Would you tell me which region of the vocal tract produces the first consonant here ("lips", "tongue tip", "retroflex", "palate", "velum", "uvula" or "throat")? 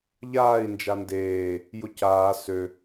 palate